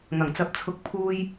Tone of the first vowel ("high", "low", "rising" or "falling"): low